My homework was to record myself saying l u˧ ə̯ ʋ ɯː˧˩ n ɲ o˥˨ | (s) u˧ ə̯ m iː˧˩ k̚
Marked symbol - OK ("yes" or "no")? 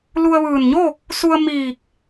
yes